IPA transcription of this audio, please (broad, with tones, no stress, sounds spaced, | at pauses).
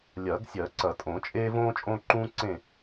lʲ ɐː˨˩˦ ɡ sʲ ɜ˨˩˦ ǀ ɐ˨˩˦ tʼ õ˨˩˦ t͡ʃʼ eː˦ v õː˦ t͡ʃʼ õː˦ ǃ ũː˦ ǀ ẽ˦˨